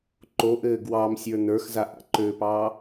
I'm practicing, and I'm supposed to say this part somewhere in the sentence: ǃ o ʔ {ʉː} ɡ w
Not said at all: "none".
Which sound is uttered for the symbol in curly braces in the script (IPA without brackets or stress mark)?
ɘː